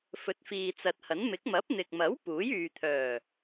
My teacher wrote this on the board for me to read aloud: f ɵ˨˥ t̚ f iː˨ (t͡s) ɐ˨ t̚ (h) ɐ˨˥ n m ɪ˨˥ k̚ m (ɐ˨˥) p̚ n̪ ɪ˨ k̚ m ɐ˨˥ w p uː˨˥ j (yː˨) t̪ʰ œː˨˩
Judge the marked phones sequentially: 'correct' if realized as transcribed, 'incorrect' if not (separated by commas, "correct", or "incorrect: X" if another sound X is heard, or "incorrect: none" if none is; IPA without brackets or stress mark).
correct, correct, correct, correct